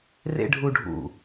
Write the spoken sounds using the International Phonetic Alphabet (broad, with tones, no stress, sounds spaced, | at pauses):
r ḛ˥ ɖʱ u˥ ɖʱ ṵ˦˨